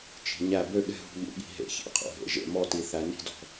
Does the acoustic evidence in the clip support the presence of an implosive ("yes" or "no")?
yes